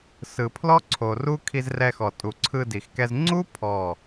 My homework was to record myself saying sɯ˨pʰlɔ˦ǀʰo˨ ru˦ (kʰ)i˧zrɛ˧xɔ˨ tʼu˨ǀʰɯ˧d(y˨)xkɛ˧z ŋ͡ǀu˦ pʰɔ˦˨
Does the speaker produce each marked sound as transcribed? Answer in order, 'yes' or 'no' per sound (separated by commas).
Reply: yes, no